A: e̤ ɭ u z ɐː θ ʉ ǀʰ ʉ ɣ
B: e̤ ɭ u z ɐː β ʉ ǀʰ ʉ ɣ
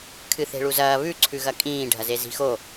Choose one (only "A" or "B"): B